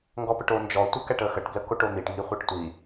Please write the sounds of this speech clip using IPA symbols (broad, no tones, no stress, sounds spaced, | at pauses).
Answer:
ŋ ɡ ɔ p ə ʈ o n d͡ʒ ɔ tʷ ə k æ ʈ ə x ə ʈ b l ə k o ʈ o n̪ i ʈ ŋ i χʷ ɛ ʈ tʷ i